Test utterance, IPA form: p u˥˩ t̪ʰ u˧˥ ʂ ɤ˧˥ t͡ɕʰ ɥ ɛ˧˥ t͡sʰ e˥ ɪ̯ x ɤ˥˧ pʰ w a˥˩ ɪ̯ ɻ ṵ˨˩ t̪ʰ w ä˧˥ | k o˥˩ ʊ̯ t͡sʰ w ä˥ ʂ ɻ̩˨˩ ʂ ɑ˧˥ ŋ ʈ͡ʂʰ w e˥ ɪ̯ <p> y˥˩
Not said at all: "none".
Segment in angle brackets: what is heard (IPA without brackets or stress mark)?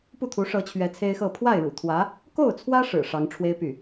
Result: p